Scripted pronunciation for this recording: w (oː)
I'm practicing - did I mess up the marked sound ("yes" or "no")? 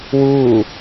yes